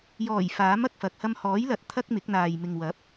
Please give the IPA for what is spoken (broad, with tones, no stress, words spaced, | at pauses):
jɔː˨˩j faː˨˥m ɐ˨k̚fɐ˨k̚ hɐ˧mhɔː˨˥jlɐ˨˥t̚ t̪ʰɐ˥k̚mɪ˨˥k̚n̪aː˨j mɪ˨ŋ wɐ˨˥p̚